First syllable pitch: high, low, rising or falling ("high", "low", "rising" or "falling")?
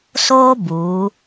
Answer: high